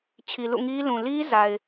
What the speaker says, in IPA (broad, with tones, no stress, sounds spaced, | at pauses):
t͡ɕʰ i˨ l ṵ˦˨ ŋ i˦ l ũ˨ l i˦ z a˨ ɪ̯